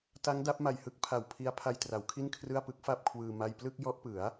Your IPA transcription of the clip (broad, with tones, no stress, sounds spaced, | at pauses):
t a˦˥ ŋ d a˦˥ p̚ m a˨˩ j h ɯ˦˥ k̚ pʰ a˨˩ w pʰ i˦˥ a̯ pʰ a˧ j t r a˩˦ w kʰ i˥˩ n kʰ r ɯ˥˩ a̯ p ɯ˦˥ k̚ f a˥˩ p̚ kʰ w ɯː˧ m a˥˩ j p l ɯ˥˩ k̚ j ɔ˦˥ ʔ p ɯ˩˦ a̯